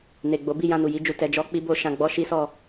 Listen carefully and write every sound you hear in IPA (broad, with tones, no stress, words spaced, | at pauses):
ne˨ɡ͡bo˨˦ bi˦˨jã˧nu˨ ji˧d͡ʒu˨ tɛ˨d͡ʒɔ˧k͡pi˧bo˧ ʃã˧ɡ͡bɔ˦ʃi˦sɔ˦˨